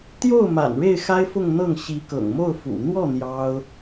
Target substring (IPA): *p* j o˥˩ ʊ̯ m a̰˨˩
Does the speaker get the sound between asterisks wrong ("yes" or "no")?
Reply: yes